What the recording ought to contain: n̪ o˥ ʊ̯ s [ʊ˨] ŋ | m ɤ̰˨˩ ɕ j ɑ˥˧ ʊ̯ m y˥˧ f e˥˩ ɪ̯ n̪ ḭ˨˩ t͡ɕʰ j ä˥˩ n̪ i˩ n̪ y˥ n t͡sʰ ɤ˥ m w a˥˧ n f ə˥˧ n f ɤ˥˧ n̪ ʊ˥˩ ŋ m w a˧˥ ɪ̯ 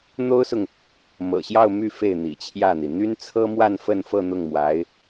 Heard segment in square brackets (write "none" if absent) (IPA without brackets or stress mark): ʊ˨